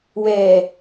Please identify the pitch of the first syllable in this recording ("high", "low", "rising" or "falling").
low